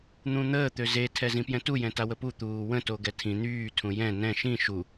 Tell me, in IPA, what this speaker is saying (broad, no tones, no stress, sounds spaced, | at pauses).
n̪ ũ n̪ əː t̪ ø z e tʰ ɛ z ĩ p j ɛ̃ t u j ɛ̃ t a w ə p u t̪ uː w ə̃ t o ɡ ɛ tʰ ĩ n̪ yː tʰ ũ j ɛ̃ n ɛ̃ ʃ ĩ ʃ u